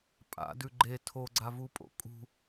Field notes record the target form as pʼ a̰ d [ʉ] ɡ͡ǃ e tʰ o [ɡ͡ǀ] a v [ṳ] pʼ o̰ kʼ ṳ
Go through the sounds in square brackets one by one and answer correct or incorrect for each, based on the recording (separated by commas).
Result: correct, correct, incorrect